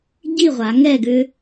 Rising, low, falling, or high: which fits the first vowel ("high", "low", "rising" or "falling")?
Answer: falling